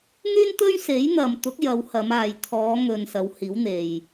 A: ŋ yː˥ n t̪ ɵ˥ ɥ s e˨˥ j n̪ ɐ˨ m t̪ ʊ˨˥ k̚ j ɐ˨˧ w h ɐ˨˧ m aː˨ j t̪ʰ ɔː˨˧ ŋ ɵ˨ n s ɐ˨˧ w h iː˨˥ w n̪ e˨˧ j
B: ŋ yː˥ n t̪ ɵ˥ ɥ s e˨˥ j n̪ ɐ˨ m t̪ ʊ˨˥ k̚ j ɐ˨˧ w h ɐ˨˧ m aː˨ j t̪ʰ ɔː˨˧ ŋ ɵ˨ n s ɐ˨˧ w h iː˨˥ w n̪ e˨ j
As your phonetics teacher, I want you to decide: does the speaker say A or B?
B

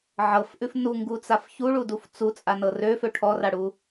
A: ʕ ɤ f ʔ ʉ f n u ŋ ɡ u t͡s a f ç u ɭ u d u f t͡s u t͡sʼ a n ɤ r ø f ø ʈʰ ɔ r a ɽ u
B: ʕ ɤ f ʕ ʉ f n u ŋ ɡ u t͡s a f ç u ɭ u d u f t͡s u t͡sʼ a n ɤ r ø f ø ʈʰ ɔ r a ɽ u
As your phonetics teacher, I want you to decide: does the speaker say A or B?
A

